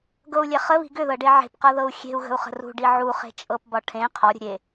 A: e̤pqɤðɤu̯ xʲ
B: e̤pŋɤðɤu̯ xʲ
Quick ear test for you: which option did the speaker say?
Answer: A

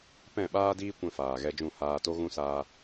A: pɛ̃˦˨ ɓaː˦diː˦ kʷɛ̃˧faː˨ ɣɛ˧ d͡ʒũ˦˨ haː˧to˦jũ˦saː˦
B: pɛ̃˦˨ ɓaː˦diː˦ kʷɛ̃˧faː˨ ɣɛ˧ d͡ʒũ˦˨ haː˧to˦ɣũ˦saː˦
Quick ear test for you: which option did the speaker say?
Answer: B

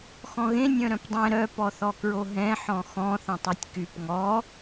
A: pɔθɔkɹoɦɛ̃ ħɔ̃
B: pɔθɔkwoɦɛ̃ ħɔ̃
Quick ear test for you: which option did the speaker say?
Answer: A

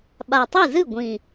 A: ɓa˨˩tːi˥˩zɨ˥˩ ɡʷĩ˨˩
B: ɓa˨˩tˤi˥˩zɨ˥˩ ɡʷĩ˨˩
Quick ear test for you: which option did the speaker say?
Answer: B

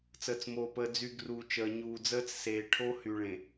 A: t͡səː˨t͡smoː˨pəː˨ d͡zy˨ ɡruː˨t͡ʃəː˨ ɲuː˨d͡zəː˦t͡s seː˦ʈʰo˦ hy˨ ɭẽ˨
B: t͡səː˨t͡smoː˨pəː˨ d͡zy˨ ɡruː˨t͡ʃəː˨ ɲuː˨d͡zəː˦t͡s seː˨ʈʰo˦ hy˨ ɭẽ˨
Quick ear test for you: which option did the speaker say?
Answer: B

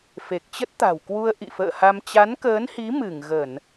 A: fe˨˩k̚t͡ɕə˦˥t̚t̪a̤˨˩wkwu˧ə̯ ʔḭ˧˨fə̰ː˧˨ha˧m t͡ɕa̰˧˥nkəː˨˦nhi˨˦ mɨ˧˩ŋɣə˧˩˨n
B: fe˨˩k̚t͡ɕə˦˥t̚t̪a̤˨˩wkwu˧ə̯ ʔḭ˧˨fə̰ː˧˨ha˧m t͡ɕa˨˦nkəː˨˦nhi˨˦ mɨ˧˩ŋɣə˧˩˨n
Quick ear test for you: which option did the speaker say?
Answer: B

